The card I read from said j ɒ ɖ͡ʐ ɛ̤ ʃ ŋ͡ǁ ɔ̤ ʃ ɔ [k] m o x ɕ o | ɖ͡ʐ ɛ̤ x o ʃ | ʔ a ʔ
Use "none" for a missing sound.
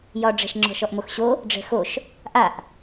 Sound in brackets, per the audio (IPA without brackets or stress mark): ʔ